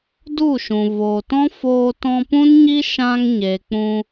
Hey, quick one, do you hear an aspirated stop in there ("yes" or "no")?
no